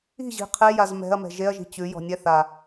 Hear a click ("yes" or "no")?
no